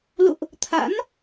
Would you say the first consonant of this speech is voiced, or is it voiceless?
voiced